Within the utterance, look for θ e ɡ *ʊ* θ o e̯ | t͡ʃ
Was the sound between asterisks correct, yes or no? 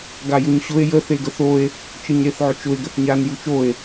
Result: no